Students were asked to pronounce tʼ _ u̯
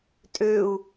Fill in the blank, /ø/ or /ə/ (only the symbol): ø